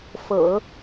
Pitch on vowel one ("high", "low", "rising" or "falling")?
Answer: low